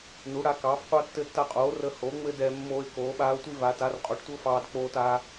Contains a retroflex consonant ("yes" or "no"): yes